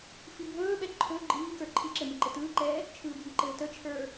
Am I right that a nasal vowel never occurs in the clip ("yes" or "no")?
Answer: yes